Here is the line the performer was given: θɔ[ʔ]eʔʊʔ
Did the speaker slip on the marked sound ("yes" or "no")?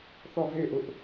yes